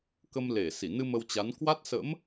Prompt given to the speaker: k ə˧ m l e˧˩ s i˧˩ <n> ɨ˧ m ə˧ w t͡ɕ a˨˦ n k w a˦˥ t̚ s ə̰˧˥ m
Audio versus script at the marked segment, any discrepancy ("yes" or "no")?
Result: no